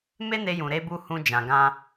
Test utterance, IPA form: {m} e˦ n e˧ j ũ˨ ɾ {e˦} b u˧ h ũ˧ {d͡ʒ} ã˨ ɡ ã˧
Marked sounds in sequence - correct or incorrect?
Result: correct, incorrect, correct

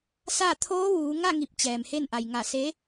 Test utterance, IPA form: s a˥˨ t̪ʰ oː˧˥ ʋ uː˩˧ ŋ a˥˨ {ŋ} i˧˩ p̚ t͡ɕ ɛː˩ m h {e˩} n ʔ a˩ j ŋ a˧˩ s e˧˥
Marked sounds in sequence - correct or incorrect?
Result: correct, incorrect

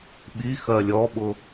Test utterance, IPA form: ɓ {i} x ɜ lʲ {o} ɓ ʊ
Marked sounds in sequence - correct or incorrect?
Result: correct, incorrect

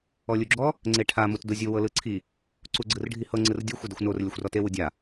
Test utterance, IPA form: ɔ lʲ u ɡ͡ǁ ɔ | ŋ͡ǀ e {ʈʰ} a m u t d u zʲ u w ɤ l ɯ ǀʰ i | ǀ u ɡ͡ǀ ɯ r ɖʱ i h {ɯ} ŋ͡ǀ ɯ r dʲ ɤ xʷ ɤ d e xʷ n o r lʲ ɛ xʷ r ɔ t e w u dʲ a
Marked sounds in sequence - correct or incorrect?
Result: correct, incorrect

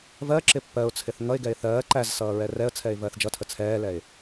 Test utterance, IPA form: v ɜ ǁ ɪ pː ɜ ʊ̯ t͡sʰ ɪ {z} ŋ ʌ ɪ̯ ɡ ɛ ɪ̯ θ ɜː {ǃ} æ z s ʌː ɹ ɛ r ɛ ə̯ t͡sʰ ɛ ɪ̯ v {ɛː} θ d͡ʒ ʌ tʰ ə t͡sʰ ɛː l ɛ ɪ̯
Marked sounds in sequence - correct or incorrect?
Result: incorrect, correct, incorrect

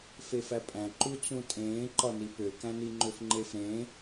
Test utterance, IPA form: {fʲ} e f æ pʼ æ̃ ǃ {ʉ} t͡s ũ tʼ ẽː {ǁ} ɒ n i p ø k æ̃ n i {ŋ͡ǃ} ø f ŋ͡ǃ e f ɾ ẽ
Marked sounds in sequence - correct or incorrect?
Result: incorrect, incorrect, incorrect, correct

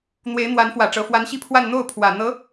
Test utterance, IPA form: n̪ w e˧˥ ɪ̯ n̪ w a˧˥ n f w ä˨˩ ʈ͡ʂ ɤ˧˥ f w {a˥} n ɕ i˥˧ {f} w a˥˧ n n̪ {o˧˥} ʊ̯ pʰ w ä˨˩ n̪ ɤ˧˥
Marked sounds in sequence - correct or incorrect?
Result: incorrect, incorrect, incorrect

